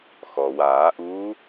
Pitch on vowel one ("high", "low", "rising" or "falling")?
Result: low